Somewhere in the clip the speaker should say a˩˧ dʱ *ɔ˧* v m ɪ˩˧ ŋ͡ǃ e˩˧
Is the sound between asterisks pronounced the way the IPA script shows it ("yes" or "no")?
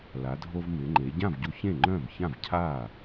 no